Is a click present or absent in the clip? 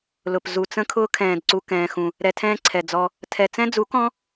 present